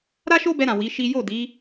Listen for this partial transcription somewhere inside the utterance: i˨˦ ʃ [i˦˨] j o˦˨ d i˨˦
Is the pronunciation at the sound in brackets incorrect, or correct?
incorrect